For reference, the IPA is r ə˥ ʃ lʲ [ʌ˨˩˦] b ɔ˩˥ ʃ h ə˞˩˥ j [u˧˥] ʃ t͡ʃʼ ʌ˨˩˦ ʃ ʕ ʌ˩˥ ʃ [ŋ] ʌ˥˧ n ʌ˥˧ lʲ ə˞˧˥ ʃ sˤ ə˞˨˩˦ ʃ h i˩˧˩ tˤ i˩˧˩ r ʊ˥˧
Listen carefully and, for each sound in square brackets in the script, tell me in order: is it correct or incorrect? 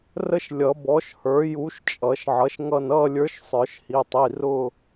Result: correct, correct, correct

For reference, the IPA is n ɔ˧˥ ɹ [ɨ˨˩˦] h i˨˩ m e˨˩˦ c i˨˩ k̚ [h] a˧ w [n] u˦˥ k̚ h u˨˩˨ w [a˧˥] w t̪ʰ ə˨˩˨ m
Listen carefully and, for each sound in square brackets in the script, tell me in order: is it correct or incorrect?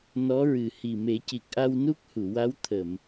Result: incorrect: ɨ˨˩, incorrect: ʔ, correct, correct

